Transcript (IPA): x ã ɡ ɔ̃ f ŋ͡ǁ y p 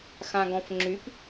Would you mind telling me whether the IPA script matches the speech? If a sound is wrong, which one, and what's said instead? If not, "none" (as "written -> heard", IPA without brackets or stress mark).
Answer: none